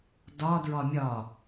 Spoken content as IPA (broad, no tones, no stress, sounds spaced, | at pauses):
d ɒ d ɹ ɒ mʲ ɒ